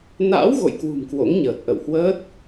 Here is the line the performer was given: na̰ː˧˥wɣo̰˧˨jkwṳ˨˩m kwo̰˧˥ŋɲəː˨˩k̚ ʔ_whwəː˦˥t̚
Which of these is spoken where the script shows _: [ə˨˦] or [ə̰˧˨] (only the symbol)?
ə̰˧˨